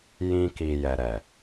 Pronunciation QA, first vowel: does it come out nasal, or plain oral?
nasal